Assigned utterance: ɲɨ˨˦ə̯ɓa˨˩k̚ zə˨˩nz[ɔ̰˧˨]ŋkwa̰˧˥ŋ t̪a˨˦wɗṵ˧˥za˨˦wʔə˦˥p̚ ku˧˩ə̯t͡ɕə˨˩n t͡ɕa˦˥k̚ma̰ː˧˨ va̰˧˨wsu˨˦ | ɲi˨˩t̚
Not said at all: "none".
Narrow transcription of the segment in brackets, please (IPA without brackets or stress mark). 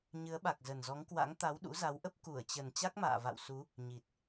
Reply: ɔ˨˦